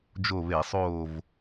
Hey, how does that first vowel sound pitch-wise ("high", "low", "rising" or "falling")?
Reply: falling